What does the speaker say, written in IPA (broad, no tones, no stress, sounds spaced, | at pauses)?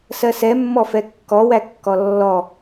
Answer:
s ɜ s ɛ mː ɔ f ɛ kː ɔ w æ kː ɔ lː ɔ